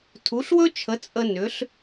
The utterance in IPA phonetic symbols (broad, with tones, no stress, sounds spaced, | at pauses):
tʰ u˩˥ ɬ w ɵ˥ t͡ʃʰ ə˩˥ t͡sʼ ə˧ n ʏ˩˥ ɬ